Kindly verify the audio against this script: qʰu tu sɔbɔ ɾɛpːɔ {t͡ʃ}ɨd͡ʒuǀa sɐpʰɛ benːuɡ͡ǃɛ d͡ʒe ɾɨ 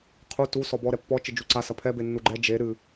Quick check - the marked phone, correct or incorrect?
correct